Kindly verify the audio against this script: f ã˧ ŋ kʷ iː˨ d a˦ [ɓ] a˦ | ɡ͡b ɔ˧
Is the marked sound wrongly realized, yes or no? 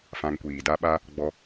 no